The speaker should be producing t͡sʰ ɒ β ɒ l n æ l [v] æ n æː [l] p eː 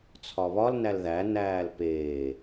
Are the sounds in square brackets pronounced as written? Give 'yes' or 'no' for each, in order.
no, yes

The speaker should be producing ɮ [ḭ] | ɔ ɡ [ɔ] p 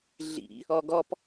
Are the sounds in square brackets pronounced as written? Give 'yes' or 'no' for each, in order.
yes, yes

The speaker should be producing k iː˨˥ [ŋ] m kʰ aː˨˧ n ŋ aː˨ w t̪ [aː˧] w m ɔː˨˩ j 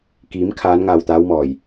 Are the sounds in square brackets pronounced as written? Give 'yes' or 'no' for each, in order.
no, no

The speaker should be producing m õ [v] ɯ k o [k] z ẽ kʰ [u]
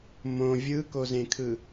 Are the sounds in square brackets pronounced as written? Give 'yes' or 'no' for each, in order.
no, no, no

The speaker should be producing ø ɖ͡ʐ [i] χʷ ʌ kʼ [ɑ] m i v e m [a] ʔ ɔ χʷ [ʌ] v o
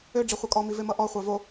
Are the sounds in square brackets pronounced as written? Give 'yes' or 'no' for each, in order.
yes, no, no, no

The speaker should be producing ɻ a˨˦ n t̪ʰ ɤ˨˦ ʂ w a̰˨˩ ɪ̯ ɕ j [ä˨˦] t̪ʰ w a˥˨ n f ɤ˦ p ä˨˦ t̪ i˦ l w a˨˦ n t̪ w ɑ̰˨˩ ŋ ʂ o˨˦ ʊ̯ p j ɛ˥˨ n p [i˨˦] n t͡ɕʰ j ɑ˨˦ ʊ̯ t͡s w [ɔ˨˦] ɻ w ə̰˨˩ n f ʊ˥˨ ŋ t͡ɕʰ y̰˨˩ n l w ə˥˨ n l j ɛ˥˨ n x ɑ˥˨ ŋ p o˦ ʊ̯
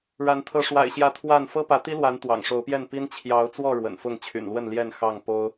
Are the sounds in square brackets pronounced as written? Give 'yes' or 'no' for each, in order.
yes, no, no

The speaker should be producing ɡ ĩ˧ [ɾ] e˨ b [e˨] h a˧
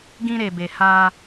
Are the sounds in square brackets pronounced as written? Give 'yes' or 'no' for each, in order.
yes, yes

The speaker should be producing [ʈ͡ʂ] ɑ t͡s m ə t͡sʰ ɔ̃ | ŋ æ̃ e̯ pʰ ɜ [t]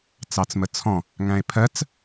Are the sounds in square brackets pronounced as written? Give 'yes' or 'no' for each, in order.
no, no

